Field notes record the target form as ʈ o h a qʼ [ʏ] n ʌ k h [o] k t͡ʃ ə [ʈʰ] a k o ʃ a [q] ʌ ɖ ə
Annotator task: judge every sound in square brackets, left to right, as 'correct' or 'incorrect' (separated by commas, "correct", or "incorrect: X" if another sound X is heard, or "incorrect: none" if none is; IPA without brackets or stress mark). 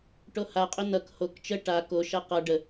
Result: correct, correct, incorrect: ʈ, correct